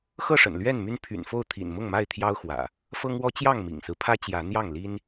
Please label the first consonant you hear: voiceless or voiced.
voiceless